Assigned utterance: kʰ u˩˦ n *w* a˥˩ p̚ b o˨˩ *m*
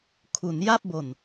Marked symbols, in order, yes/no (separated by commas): no, no